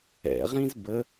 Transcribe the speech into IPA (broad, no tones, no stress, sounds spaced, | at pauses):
ɛ̰ ʁ ĩ z b ə